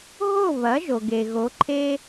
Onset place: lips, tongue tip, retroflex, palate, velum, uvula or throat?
throat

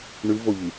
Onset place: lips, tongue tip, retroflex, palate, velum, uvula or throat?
retroflex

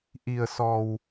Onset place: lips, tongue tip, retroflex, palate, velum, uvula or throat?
throat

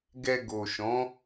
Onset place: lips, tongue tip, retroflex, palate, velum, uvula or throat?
velum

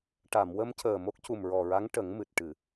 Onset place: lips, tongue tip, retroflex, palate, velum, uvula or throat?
retroflex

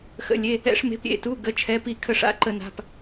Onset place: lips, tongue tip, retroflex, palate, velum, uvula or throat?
velum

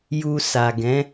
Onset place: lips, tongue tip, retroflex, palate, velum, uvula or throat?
palate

